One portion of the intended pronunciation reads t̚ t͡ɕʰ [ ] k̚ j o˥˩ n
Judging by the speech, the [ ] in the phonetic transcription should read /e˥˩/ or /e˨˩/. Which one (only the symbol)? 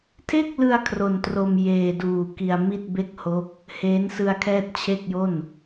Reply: e˥˩